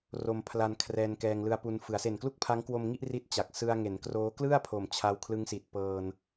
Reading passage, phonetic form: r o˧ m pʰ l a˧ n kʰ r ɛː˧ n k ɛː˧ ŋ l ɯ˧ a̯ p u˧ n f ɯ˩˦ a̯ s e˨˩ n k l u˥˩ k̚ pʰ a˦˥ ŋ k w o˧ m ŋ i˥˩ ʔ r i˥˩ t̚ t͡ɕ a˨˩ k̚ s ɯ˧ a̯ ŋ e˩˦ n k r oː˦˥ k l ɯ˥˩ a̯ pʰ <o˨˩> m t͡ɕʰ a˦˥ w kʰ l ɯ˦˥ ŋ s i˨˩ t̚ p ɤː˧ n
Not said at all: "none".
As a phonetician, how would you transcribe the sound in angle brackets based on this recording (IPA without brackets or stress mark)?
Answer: o˩˦